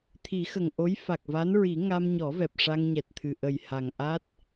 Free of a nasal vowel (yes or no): yes